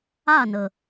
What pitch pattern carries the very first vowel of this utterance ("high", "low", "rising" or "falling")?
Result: falling